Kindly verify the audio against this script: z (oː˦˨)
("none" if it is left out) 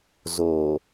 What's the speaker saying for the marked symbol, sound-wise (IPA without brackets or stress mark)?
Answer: oː˨